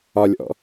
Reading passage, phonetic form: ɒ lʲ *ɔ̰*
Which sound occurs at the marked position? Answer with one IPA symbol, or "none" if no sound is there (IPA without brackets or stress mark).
ɔ̰